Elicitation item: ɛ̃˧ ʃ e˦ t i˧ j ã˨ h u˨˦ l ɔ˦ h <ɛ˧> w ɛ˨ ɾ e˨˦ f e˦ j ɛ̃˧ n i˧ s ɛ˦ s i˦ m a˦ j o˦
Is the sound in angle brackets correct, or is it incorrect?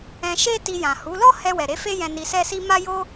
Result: correct